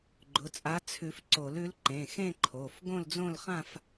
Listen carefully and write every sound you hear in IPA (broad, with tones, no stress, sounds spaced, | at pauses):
ɡ͡ǃ ʊ˩˧˩ t͡sʼ a˨˥ t͡sʰ ʉ˨˩˦ f ǀ o˨˩˦ l ʉ˨˥ l ǃ ẽ˩˧˩ x ẽ˥˧ ǃʰ o˩˧˩ f ɡ õ˥˧ l d͡z õ˥˧ l χ ã˥˧ f